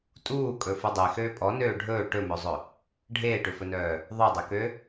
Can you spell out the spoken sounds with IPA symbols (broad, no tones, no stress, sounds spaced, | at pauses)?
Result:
tʼ uː kʼ ɵ f u dˤ e x øː pʼ ɔ n øː ɖʱ ɵː ʈ ɵ m ɵ zˤ ɵ | ɖʱ eː ʈ ø f ɵ n œː | ðˤ œ dˤ ø k ø